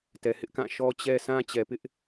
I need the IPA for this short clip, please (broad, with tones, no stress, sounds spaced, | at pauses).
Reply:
t ɛ˨ h ɪ˦ ʔ k ã˦˨ ʃ ɔ˦ t͡ɕ ɛ˦ sʰ ã˦ t͡ɕ ɛ˨ p ɪ˦ ʔ